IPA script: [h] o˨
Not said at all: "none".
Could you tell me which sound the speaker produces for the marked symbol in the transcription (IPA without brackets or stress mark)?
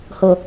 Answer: h